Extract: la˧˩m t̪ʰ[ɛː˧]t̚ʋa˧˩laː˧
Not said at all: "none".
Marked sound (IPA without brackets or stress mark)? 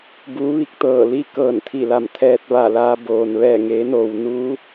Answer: ɛː˧